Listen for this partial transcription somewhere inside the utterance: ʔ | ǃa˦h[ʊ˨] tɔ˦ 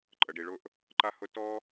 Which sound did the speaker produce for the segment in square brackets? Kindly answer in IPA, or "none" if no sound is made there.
ʊ˦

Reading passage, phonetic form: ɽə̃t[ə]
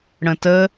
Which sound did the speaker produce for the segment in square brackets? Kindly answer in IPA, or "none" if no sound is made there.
ə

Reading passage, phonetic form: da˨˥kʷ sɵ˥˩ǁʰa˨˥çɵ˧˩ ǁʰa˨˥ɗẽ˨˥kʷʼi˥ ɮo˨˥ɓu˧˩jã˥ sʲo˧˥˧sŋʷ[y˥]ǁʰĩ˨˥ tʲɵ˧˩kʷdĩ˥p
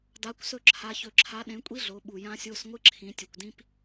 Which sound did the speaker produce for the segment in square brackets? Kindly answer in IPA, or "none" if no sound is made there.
ɨ˥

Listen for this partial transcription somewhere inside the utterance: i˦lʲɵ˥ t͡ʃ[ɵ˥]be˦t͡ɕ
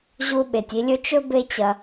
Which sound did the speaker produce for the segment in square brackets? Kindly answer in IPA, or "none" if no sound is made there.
ɵ˥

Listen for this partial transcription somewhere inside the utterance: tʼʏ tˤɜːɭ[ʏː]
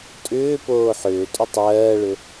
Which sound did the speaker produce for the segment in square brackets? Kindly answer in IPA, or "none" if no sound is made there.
ʏ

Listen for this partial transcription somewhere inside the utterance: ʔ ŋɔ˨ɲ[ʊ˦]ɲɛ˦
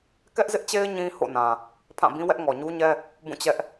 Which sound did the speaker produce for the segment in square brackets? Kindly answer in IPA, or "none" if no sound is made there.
u˦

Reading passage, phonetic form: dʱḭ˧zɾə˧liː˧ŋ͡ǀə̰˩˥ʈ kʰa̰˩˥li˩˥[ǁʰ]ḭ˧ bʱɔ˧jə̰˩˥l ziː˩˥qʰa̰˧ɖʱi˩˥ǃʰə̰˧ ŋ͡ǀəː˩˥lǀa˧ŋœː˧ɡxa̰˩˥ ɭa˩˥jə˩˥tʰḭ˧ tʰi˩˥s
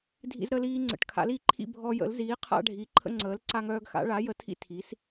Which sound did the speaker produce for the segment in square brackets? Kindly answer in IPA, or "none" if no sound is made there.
ǃʰ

